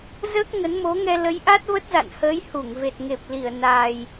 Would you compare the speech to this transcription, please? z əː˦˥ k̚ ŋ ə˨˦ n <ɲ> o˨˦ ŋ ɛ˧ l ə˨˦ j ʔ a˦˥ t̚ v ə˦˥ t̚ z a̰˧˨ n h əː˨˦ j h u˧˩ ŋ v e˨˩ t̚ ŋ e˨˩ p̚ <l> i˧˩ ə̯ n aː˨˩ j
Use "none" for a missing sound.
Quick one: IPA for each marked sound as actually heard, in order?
m, l

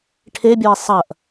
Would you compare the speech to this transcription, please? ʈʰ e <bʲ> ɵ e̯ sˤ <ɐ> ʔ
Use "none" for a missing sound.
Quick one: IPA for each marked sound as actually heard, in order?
bʲ, ɐ

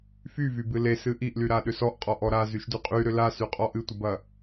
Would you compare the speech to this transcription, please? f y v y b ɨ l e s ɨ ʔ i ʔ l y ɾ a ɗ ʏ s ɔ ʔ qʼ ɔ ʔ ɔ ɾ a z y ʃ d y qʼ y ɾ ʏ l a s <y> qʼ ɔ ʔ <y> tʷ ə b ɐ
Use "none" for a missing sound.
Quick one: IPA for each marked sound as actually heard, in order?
y, ɨ

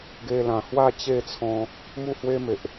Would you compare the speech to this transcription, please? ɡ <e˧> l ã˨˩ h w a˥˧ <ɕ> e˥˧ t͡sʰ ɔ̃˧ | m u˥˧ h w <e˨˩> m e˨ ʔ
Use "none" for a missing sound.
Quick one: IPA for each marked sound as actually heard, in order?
e˧, t͡ɕ, e˦

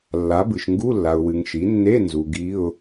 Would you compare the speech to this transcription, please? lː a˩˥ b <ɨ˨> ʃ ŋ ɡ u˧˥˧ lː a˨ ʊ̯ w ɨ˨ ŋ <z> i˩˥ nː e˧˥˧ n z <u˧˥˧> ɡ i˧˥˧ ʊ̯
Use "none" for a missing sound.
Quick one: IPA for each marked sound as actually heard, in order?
ɨ˨, ʃ, u˨

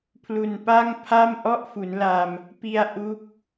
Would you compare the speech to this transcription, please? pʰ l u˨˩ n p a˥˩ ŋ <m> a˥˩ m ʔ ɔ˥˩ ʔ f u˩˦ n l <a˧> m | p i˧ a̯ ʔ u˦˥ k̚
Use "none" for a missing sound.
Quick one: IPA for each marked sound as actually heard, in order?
pʰ, a˧

